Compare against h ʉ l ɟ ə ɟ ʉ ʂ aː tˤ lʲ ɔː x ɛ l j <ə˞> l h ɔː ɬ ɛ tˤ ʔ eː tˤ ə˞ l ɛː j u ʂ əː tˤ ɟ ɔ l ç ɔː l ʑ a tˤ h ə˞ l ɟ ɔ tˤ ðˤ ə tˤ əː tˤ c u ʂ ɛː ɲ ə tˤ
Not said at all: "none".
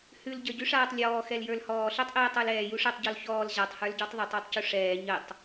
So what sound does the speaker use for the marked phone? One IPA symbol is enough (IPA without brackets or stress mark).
ə˞